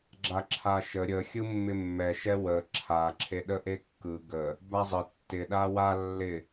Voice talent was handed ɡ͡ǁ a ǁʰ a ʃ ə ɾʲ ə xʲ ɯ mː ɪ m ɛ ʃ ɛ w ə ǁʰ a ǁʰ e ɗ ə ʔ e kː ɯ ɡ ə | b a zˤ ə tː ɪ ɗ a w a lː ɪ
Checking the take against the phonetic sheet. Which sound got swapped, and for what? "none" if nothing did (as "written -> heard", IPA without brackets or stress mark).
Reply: m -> mː